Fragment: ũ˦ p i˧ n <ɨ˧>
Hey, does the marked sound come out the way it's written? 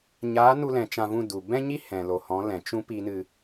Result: yes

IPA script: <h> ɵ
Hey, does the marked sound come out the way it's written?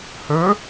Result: yes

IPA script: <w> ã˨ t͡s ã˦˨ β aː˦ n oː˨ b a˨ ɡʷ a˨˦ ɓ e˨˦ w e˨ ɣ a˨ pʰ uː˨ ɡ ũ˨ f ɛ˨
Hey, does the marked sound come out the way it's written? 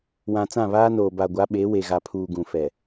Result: yes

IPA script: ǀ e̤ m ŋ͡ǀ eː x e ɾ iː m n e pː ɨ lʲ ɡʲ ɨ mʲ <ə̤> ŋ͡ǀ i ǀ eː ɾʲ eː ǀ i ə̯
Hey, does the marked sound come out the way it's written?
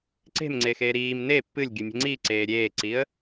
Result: yes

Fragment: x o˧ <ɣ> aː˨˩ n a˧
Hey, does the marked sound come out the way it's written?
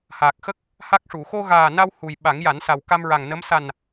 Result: yes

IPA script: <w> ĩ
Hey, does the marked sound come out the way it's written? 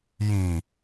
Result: no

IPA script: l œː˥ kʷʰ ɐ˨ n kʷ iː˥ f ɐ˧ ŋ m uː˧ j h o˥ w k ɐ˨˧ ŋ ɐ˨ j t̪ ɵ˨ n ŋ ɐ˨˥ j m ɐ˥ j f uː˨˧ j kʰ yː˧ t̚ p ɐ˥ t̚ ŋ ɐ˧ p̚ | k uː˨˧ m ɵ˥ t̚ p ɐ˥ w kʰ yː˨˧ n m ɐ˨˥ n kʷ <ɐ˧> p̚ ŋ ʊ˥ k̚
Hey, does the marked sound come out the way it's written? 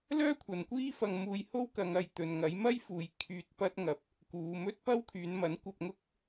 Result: yes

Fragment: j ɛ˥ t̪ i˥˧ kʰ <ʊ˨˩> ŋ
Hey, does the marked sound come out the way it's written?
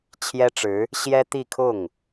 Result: no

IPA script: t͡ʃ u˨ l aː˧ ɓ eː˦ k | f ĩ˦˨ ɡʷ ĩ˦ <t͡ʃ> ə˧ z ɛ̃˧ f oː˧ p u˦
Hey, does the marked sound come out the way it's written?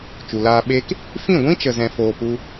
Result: yes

